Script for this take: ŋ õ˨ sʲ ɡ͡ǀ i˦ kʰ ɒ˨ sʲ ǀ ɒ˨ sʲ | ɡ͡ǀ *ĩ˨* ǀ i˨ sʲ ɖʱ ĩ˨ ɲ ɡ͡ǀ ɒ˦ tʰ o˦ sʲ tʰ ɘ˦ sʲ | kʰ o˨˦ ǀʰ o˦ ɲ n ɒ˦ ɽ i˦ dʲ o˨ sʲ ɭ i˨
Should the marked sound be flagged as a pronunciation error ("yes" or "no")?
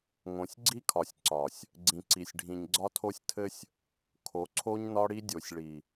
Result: no